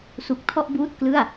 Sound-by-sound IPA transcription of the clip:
s u˨˩ k̚ tʰ ɔ˥˩ ʔ b uː˥˩ t̚ k l ɯ˥˩ a̯

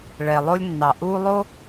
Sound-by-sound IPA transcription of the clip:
ɭ ɛ˩ lˠ o˦ lʲ nː ɑ˩ ʔ uː˦ lˠ o˥

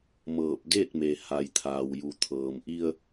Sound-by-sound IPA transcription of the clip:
m ɤː˧˩ p̚ d e˥˨ t̚ m e˩ h a˩ j t̪ʰ aː˩ w j u˩ t̪ʰ ɤː˩ m ʔ i˧ ə̯

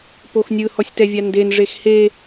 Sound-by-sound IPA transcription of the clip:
p o x nʲ ɯ h ɔ sʲ t ɛ vʲ a n d e n ʐ e x h e

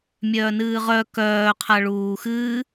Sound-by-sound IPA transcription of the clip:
mʲ œː n ɨː ʁ œ k œː qʰ a ɭ uː x ɨː

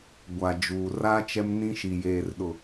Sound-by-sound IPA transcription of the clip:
ɡʷ a˨ d͡ʒ uː˨ r a˦ t͡ʃ ɛ˦ m n ĩ˦ ʃ i˨ j eː˨ r ɗ ʊ˨

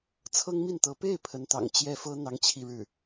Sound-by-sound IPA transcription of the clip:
t͡sʰ ɤ˥ ŋ m i˥˩ n t̪ ɤ˧˥ p e˥˩ ɪ̯ pʰ ə˧˥ n t̪ ɑ̰˨˩ ŋ t͡ɕ j ɛ˥˩ f ɤ˥ n̪ ɑ˥ ŋ t͡ɕʰ i˥˧ ɻ ɻ̩˥˩

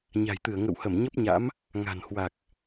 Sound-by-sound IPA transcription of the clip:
ɲ a̤˨˩ j t̪ ɨ˧˩ ə̯ ŋ ə̰˧˨ w h ə˧˩ m ɲ ə˦˥ p̚ ɲ a̰˧˥ m | ŋ a̤˨˩ n h w a˨˩ k̚

